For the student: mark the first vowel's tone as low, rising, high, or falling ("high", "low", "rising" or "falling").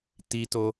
high